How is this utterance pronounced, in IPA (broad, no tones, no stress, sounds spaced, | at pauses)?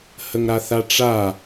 h ə ŋ ɾ a θ a ʈ͡ʂ a